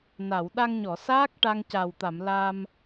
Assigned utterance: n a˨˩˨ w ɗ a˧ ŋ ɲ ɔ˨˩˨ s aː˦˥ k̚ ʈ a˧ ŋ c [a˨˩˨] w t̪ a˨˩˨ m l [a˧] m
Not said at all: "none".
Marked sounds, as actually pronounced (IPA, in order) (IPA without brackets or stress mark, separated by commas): a˨˩, a˧